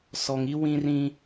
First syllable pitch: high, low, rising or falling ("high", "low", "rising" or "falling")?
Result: low